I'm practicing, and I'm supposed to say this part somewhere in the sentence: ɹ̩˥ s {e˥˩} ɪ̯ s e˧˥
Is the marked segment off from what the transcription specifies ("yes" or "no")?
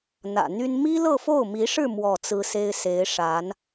yes